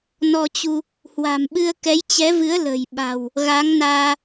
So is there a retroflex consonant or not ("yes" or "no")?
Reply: no